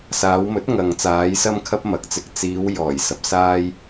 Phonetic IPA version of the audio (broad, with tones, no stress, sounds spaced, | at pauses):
s aː˨˧ w m ɵ˨˥ t̚ ŋ ɐ˨ ŋ t͡s aː˨˧ j s ɐ˧ m kʰ ɐ˧ p̚ m ɐ˨˥ k̚ t͡s ɪ˧ k̚ t͡s iː˨˧ w j ɔː˨˩ j s ɐ˨ p̚ s aː˥ j